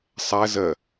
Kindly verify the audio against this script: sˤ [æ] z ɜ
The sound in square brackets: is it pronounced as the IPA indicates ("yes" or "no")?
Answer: yes